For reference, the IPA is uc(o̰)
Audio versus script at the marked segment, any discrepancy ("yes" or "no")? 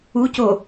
yes